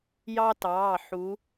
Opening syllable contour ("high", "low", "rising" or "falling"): high